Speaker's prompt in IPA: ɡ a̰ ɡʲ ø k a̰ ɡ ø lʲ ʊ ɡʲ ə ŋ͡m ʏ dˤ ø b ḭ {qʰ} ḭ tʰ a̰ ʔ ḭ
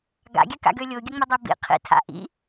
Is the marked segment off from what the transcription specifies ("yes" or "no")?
no